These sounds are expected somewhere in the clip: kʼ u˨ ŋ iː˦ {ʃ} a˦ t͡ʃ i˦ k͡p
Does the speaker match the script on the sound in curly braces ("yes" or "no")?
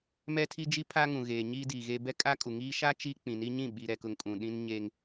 yes